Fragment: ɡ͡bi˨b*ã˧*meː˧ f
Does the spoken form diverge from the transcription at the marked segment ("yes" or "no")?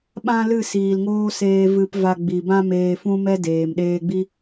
yes